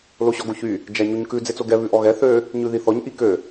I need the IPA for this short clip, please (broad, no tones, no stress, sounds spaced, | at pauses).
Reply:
l o ɕ ɔ ɡ o ç y | d͡ʒ æ ɲ u ɲ k ʉ d͡z e t͡s o ɡ ɛ β ʉ ʔ ɔ ɣ ɛ θ ø | ɲ ʉ ð i θ ɔ ɲ ʔ i k ø